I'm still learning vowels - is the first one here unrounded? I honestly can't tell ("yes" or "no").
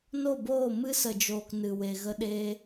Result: no